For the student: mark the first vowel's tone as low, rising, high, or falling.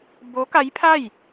rising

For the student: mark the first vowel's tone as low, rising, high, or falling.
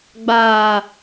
low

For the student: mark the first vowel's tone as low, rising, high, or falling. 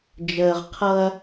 low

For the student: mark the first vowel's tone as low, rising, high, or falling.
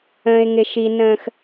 low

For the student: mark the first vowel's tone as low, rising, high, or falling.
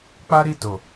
high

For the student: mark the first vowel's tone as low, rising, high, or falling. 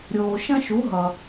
low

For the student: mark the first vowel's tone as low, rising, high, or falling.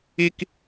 high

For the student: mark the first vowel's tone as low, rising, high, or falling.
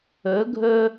rising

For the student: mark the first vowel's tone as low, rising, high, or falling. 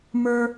high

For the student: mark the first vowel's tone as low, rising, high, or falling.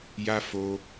high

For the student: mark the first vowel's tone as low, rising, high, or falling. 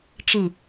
low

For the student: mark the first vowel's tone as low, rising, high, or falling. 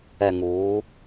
low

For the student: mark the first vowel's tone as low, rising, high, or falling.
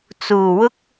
low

